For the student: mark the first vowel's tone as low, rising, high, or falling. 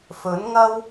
rising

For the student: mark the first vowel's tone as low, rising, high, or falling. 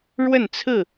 falling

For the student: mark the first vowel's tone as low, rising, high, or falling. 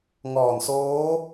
low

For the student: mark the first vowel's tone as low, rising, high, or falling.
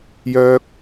high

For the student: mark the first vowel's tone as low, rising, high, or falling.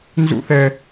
high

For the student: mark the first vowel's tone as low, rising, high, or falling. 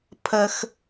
low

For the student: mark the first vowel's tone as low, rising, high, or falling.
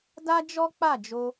high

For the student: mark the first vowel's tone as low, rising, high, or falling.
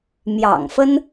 low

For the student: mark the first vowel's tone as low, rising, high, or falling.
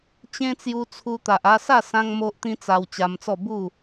high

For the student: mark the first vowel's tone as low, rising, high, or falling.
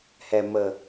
low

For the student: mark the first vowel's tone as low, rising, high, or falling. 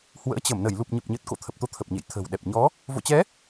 rising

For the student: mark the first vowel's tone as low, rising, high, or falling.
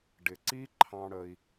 low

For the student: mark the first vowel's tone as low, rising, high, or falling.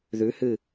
rising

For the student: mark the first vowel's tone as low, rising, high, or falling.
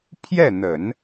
falling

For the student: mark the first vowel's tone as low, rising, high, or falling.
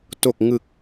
low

